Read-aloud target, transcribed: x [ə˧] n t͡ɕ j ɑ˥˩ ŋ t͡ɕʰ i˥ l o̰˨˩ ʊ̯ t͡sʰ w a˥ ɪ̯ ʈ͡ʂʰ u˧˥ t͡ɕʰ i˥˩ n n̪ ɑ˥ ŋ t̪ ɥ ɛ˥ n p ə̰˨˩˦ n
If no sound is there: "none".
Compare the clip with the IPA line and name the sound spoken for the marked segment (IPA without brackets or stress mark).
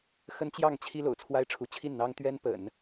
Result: ə˥